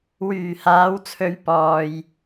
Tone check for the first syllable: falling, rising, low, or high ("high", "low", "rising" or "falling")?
low